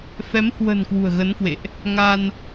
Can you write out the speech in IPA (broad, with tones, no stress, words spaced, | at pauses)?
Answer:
fɛ˨˦mhwə̤˨˩n kwṳ˨˩ə̯ɣə˨˦nkwḛ˧˨ʔ | ŋa˧n